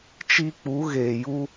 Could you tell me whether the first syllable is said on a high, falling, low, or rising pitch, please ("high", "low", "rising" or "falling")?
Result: high